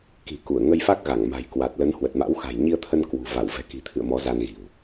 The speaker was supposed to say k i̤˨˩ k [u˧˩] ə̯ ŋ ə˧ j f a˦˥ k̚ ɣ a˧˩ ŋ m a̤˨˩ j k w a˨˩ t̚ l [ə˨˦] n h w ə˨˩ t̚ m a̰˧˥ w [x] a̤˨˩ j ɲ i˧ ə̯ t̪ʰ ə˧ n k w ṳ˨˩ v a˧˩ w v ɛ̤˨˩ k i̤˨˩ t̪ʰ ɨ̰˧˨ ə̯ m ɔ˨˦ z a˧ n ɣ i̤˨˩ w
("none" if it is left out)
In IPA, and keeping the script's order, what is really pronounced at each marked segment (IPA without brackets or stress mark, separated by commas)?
u˧˩, ə˨˦, x